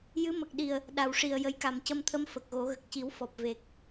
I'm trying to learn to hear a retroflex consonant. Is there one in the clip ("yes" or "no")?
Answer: yes